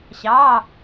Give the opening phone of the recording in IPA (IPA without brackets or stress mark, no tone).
ɕ